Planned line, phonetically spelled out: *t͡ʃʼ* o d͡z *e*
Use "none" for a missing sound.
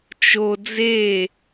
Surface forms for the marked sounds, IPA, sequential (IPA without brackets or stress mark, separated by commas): t͡ʃ, e